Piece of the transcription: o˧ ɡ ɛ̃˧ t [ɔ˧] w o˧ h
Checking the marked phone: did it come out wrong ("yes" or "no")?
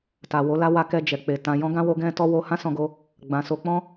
no